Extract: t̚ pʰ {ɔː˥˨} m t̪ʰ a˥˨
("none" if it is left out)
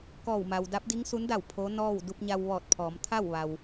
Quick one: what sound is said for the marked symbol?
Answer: ɔː˩˧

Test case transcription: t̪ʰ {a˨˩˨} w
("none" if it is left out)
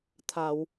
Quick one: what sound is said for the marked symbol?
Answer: a˨˩˨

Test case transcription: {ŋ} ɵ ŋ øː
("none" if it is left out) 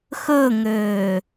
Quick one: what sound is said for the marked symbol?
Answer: x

